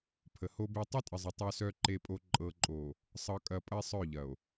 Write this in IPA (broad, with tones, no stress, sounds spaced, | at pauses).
pʰ ə˨ h o˦ b e˦ tˤ ɐ˦ tʼ ə˨ zˤ ə˨ tˤ œ˨ s œ˨ ǃ e˨ pʼ o˨ ǃʼ ɤ˨ ǃʼ o˨ | sˤ ɤ˨ kʼ ɐ˨ pʼ ɐ˦ e̯ sˤ œ˦˨ ʎ ɐ˨ o̯